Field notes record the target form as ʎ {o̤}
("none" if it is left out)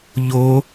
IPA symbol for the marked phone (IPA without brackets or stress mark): o